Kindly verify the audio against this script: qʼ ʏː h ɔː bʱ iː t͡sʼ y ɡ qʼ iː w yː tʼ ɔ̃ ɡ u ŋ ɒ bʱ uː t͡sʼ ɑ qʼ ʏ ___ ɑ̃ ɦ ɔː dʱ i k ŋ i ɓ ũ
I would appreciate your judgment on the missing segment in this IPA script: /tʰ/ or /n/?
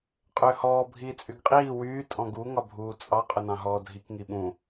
n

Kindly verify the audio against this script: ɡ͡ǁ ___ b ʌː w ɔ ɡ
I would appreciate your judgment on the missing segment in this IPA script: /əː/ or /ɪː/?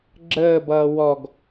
əː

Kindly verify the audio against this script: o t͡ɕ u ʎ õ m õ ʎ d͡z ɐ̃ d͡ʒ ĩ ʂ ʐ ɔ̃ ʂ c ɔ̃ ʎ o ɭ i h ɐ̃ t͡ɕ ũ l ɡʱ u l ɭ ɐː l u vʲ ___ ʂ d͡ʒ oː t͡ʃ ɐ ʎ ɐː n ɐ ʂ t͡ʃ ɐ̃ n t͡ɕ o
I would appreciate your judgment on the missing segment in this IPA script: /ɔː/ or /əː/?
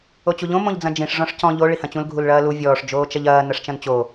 ɔː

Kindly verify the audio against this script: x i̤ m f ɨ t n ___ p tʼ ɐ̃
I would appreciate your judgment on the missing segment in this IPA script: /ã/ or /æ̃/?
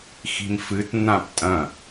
ã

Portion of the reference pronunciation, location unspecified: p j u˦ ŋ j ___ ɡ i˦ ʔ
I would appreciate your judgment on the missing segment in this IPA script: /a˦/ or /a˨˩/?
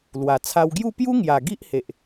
a˨˩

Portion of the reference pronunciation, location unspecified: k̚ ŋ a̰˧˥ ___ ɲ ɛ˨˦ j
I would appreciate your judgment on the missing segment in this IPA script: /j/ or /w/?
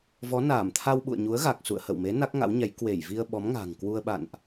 w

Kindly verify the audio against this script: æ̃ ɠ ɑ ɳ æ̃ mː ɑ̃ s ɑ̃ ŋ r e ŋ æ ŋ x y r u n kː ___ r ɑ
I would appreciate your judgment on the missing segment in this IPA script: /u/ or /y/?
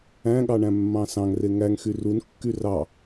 y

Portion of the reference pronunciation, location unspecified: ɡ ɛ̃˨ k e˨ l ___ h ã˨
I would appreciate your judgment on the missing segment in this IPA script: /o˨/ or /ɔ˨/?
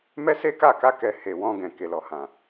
ɔ˨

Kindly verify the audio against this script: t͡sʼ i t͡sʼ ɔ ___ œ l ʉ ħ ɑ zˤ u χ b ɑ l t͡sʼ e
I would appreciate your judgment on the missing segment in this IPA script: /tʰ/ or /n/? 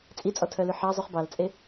tʰ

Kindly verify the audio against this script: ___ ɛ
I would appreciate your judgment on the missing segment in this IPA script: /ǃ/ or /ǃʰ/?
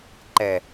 ǃ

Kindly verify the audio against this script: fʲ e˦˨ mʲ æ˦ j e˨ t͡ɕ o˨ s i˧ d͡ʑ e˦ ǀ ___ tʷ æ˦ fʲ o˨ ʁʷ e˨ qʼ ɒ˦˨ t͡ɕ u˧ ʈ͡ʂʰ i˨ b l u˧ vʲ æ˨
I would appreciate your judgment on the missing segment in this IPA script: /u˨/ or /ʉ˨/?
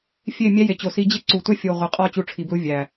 u˨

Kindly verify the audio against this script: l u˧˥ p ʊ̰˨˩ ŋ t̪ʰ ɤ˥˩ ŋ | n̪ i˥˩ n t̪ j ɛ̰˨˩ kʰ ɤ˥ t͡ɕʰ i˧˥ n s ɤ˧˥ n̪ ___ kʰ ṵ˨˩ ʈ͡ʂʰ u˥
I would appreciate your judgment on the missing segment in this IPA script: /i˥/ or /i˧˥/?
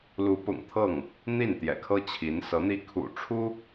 i˥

